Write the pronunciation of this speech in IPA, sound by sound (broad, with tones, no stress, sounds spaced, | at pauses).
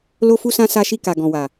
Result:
l o˦ f u˦ s ã˦ s a˧ ʃ i˧ k a˨ ɡ ɔ̃˨ w a˨